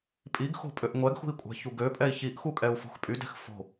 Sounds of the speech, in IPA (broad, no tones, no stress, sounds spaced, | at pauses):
pʼ i ɡ x o̤ pʼ ø ʔ ŋʷ ɛ ɡ x ṳ i̯ kʷʼ ɛ̤ ç u ɡ ø pʼ ɛ i̯ ç i ʔ x u kʼ ɛ u̯ f o̤ x pʼ y d ɛ̤ x f o̤